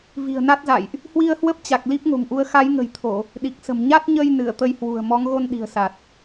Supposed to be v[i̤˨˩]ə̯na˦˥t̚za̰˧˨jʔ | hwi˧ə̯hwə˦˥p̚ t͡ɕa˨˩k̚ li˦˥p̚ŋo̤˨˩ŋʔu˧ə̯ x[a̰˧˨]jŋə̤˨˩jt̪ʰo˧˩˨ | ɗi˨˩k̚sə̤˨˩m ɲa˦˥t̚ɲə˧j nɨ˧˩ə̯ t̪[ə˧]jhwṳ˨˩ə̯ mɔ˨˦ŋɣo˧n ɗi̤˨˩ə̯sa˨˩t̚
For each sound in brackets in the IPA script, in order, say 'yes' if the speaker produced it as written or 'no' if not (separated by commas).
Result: yes, no, yes